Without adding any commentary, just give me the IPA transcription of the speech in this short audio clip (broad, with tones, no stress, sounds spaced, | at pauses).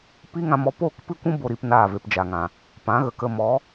p i˦ ŋ ã˧ m ɔ˧ p oː˦˨ k p ɨ˦ kʷ ũ˦ b o˧ ɾ i˧ p n aː˦˨ v e˧ p d͡ʒ a˨ ŋ ã˨ | p ã˨˦ ɣ ə˨ k ə˧ m ɔ˨˦